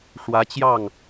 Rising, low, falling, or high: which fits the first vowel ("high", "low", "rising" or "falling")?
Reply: rising